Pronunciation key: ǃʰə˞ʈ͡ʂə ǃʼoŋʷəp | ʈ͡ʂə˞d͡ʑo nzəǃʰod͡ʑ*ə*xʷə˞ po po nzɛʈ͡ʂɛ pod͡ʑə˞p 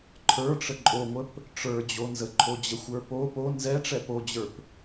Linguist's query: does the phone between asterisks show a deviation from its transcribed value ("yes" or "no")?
no